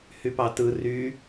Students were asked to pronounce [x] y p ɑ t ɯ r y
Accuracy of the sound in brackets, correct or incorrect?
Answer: incorrect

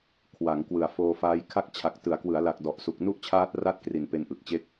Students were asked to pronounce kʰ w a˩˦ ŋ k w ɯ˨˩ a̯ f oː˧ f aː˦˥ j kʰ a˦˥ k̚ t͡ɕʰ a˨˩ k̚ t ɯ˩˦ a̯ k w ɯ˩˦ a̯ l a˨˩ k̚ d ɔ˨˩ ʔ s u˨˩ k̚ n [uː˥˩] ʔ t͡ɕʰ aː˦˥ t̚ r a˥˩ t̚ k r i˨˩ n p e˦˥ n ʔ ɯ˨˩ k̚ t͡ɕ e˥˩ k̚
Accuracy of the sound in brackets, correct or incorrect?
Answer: incorrect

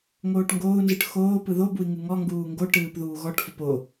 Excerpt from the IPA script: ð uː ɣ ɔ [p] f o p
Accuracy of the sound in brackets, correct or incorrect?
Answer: incorrect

